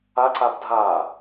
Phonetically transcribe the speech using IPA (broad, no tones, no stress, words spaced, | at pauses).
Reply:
aǀab dʱa